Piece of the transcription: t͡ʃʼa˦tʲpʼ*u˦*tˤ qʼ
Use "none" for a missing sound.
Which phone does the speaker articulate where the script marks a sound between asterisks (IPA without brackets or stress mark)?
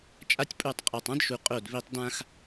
u˦˨